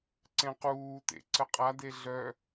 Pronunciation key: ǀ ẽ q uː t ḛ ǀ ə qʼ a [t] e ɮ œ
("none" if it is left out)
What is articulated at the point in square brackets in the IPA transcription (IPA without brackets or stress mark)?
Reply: d